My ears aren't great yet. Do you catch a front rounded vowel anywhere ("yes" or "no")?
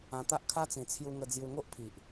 no